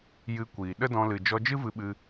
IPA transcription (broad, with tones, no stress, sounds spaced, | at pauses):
j ɨ˧ kʷ iː˨ ɗ ə˦ d ɔ̃˧ l ɨ˨ d͡ʒ ɔ˧ d͡ʒ ɨ˦ v ɨ˧ ɓ ɨ˧